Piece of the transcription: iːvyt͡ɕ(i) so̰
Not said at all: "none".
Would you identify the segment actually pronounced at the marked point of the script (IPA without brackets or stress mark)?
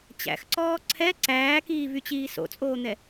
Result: iː